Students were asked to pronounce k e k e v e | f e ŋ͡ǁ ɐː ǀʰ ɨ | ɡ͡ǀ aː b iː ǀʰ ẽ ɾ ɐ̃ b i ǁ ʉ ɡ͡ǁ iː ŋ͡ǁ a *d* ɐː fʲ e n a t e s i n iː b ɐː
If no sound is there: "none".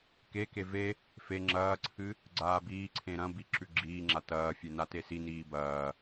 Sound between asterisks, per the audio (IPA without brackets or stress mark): t